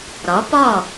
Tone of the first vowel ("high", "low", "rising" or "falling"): rising